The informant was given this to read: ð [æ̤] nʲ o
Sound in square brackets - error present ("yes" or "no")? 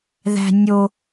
no